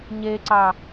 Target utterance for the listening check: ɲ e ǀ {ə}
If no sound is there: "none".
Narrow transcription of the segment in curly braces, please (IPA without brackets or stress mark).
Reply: ɑ